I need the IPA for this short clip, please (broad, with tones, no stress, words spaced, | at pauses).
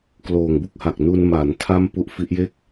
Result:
kloː˨˩ŋbu˥˩k̚ha˨˩k̚ nu˧n ma˩˦ntʰa˥˩m pu˦˥ʔfi˦˥ʔje˥˩k̚